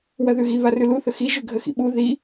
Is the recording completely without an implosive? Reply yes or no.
no